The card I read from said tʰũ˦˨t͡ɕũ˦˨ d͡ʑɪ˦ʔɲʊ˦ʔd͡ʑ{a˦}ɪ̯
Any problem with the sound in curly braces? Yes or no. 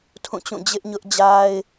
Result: no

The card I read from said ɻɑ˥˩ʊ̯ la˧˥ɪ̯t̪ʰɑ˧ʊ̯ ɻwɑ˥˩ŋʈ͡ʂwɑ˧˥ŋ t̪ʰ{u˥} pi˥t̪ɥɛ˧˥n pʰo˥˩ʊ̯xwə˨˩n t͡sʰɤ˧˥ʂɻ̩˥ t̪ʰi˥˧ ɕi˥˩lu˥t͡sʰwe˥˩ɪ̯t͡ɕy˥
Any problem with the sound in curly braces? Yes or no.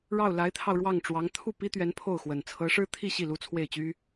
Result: yes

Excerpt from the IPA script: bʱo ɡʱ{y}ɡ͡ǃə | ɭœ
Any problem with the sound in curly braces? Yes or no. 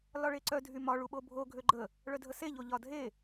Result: yes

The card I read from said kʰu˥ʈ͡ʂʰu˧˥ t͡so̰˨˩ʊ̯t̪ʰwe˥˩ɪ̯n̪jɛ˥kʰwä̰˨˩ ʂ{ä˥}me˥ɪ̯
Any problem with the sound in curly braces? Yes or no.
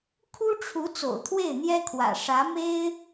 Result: yes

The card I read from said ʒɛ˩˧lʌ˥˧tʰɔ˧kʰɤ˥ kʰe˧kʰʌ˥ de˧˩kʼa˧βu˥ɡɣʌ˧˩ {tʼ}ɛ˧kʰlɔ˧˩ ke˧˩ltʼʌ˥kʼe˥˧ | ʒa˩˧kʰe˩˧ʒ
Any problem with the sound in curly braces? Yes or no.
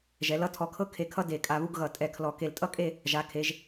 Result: no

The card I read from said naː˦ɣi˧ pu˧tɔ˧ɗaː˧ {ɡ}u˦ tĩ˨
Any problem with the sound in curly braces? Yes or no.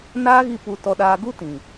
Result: no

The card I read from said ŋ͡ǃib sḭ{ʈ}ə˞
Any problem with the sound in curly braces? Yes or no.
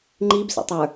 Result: yes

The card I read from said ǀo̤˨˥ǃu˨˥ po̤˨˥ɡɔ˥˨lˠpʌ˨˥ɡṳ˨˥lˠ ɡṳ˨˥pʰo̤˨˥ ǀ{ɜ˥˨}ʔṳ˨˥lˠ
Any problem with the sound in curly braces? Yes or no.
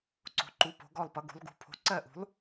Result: no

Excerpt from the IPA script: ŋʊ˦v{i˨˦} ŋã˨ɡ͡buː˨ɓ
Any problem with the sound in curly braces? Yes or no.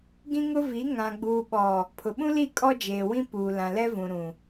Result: no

